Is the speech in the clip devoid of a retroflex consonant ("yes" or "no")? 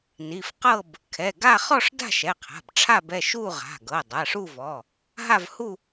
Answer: no